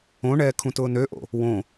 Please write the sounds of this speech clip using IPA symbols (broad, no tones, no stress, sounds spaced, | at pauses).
õ ɳ ɛː kʰ ũ t ʊː n ø ʔ o̰ | w õ